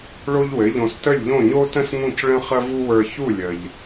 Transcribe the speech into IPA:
ɭ o˥ ʎ w ɘ˩˥ ʎ õ˧ s t ə˥˩ lʲ ʎ õ˥˩ ɲ o˥ t ə̃˥ s ŋ ũ˥˩ c ɭ ə̃˥ χ ə˥ v u˥ w ə˞˧ ç u˥˩ lʲ ə˩ ʎ

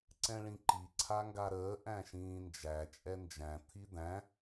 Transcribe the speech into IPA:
ǀ ɛ̃ ɭ ĩ ǃ i ǀʰ a ŋ ɡ a ɾ əː ʔ æ̃ ʃ ĩː n d͡ʒ æ t͡ʃʼ ɛ n d͡ʒ æ̃ t̪ʰ i d̪ æ̃

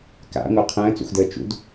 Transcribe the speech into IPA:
k a̰ ŋʷ a qʰ ə̃ː t͡s ṵ x d əː t͡ʃ ṵ d

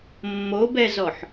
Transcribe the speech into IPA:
mː o b ɛ z ɔ ħ

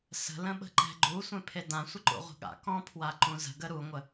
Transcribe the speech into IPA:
s ə̤ l ə̃ ɓ ə̤ ǃ ɛ̤ ɡ͡ǃ u sʷ ẽ pʰ e d ã sʷ ə ǃ ṵ ʁʷ ə̤ ɠ a̰ k ɔ̃ pʰ w a ǃ ũ z ə̤ ɡ ə ɾ u ŋʷ ə

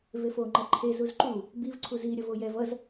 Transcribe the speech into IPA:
v e f o ŋ͡ǃ ʌ ǃʰ e z u z ǃ u | b i v ǀʰ u z i ɾʲ ʌ v o j ɛ v ʌ z

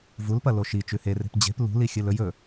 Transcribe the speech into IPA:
v u l p ɐ l o ʃ i t͡ʃ ʉ h e r e̤ p d͡ʑ e̤ p l ṳ l i xʲ ɨ l ɵ j ɵ

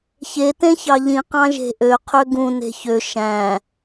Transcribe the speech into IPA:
ç e t ẽ ç ɑ ʎ ĩ q ɑ̃ ʒ e̤ ʔ ø qʰ ø ɡ ũ n e̤ ç ø ʃ æ̃

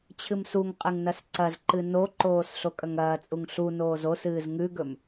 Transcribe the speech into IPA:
t͡ɕʰ ɨ m s u ŋ qʼ ɨ ŋ n ɐ s ǀ ɐ z ǃ ɨ n o ǃ oː s ɬ o kʼ ɐ ŋ ɐː t͡sʼ u ŋ ɬ u n oː z o s ɨː z ŋ ʉ ɡ ɵ m

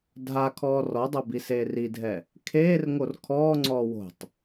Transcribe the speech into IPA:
dʱ a kʰ ɔː r ɔ dˤ o b i s eː r i dʱ ɛ | kʰ eː r ŋ o r kʰ ɔː ŋ͡ǀ ɔː w o̤ tˤ

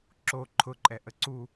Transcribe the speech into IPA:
ǁ o ǃʰ ʊ ǃʼ ɛ ʔ ə ǀ u

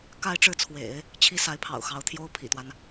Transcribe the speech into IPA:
k a˥˧ ɪ̯ ʈ͡ʂ ɻ̩˥˩ t͡sʰ w ḛ˨˩˦ ɪ̯ | t͡ɕʰ i˥ s a˧˥ ɪ̯ pʰ ɑ̰˨˩ ʊ̯ x ɑ˧˥ ʊ̯ t̪ʰ j o˥ ʊ̯ pʰ ḭ˨˩ t̪ w a˦ n

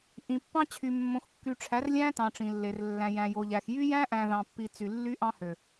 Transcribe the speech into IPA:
ʔ ĩ˨ pː ɑ̃˦ t͡ɕʰ y˨ mː õ˨ x kː y˨ ʈ͡ʂʰ æ˨˦ r lʲ æ̃˦ t ɑ̃˨ ʈ͡ʂ ĩ˨ lː e˨ r lː æ̃˨ j æ̃˨ j o˨ ʎ æ˨ x j y˦ j æ̃˦ ʔ æ̃˨ ð ɑ̃˨ pː i˨ t͡s y˨ lː y˦ ʔ ɑ̃˦ h ø˨

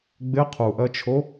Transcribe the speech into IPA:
ɡ͡b ɪ qʰ u ʔ ɜ t͡ʃʰ o

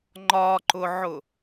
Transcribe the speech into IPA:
ŋ͡ǃ ɒ ǃ ʊ ʕ ʊ

